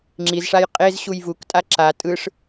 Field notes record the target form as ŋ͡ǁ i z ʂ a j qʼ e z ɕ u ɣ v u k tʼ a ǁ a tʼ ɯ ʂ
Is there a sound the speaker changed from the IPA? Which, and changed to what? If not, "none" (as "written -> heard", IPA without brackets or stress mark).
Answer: ɣ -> j